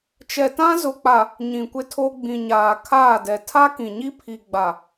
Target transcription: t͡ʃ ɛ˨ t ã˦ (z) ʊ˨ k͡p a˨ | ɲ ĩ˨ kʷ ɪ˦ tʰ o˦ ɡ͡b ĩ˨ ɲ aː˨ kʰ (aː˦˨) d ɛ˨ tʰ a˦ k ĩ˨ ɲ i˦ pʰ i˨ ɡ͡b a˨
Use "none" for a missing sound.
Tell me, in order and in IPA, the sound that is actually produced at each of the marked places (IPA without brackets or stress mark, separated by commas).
z, aː˦˨